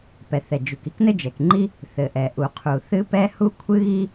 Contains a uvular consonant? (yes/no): yes